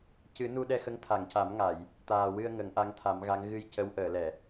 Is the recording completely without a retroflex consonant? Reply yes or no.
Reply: yes